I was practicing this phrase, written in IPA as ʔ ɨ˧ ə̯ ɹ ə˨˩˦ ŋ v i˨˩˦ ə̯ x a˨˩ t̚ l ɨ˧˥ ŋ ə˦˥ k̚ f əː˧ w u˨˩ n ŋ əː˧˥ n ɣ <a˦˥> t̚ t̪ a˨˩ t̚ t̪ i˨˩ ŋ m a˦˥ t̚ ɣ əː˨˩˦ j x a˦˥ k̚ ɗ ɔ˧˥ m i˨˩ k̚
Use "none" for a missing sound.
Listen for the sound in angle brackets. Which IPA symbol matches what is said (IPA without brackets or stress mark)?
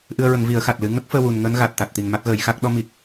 a˨˩